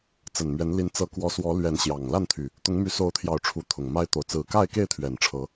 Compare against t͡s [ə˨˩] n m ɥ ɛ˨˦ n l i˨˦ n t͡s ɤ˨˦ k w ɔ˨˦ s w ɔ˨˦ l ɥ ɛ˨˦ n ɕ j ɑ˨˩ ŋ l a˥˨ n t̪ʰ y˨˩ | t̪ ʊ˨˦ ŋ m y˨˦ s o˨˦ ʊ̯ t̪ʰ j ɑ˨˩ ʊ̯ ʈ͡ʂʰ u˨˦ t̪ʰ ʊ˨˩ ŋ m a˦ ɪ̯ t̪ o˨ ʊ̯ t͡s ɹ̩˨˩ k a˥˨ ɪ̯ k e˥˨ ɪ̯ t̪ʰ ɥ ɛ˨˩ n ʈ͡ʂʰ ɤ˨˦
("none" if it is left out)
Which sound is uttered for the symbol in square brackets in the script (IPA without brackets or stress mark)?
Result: ə˨˩